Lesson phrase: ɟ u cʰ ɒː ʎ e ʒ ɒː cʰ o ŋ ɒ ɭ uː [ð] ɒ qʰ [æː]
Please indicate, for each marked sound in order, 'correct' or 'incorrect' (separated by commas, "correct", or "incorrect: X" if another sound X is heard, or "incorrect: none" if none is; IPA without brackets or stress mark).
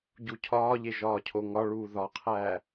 correct, correct